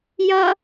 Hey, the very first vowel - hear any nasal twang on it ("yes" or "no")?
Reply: no